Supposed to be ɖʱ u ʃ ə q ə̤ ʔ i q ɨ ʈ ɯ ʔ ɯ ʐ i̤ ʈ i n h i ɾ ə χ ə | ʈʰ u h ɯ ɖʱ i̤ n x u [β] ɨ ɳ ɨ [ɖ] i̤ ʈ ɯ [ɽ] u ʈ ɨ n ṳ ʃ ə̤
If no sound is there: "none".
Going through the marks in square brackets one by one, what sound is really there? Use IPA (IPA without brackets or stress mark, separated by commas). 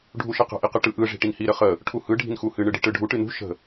h, ɖ, ɖʱ